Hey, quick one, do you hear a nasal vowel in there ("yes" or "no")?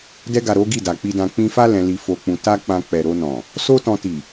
yes